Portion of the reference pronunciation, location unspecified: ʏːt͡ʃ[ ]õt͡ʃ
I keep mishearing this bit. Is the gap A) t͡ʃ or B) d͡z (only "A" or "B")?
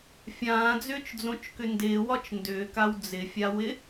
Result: B